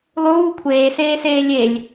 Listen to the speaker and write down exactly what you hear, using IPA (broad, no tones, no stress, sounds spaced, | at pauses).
lˠ uː kʷʰ eː s eː s eː lʲ e lʲ